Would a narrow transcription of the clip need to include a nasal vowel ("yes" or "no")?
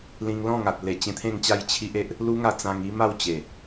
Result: yes